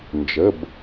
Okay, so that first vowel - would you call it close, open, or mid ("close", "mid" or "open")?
mid